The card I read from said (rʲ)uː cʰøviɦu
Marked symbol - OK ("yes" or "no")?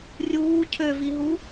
yes